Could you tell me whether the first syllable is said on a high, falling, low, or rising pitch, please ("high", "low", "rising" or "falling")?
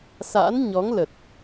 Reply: rising